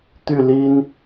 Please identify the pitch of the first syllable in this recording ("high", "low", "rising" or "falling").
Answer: falling